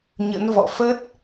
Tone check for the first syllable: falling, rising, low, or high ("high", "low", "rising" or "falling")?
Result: rising